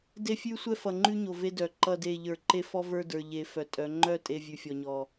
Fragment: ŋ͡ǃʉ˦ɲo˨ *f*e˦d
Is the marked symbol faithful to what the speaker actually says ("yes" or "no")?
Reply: no